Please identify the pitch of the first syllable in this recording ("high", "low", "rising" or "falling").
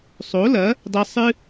rising